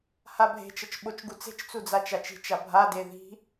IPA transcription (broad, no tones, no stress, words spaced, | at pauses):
habʱe̤t͡ʃʌt͡ʃ ɓot͡ʃɡut͡se̤t͡ʃt͡su d͡zat͡ʃat͡ʃi̤t͡ʃa bʱade ði̤